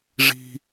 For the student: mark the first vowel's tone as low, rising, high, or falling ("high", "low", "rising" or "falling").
high